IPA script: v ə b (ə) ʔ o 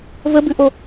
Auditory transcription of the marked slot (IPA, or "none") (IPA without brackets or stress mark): ʉ